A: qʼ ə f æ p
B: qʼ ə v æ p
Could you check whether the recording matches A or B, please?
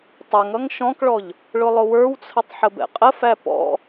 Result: A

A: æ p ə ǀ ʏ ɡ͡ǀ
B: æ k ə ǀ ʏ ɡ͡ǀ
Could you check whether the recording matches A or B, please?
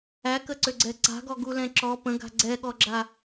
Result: B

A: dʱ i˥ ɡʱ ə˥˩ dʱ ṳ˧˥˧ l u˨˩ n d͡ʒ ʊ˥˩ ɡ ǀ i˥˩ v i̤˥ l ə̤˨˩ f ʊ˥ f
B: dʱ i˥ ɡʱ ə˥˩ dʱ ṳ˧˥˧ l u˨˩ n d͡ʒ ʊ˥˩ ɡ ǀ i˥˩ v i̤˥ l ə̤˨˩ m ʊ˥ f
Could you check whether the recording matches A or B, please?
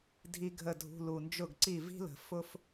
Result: A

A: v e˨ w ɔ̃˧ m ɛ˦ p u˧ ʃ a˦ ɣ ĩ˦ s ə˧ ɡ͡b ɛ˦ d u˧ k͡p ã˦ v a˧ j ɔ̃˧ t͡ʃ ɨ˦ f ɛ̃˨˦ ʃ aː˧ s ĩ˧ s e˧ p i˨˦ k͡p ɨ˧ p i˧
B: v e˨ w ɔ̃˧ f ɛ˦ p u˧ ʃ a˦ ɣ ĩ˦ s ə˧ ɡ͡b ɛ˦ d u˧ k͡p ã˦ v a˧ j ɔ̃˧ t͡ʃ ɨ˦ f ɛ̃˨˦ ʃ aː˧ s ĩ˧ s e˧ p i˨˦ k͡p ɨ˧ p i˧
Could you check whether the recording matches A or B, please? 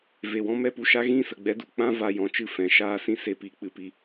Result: A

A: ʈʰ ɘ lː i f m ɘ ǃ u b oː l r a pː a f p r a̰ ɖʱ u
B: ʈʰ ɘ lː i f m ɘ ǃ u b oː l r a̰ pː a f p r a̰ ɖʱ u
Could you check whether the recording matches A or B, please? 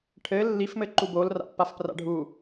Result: B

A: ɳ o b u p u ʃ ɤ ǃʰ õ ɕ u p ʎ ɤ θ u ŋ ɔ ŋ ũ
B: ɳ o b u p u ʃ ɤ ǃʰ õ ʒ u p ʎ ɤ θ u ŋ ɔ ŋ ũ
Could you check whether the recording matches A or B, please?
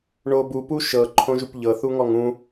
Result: B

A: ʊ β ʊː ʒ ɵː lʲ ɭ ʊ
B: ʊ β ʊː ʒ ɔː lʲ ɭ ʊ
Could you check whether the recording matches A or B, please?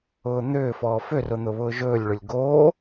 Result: A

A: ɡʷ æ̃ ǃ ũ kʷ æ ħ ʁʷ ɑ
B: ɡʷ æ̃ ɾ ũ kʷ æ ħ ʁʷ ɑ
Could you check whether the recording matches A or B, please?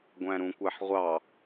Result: B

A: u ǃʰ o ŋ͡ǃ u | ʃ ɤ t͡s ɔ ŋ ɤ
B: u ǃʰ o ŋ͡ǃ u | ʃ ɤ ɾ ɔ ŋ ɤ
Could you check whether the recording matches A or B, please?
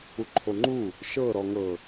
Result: B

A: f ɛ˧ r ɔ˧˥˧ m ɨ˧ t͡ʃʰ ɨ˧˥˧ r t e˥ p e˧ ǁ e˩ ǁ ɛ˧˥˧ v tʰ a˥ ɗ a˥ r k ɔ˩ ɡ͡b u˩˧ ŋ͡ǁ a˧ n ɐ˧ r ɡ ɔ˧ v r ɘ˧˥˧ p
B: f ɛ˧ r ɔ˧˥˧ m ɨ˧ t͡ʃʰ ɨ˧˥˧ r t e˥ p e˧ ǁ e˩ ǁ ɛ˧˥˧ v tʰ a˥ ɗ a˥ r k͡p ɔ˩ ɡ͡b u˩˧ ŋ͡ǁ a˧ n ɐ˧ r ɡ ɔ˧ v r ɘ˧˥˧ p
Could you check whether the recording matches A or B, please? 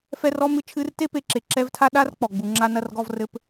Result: B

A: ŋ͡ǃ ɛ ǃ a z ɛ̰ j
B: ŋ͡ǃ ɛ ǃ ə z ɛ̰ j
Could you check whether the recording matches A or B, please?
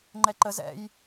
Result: B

